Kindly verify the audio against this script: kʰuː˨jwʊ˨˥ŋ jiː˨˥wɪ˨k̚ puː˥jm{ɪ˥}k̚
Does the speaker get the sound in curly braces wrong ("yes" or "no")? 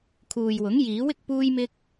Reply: no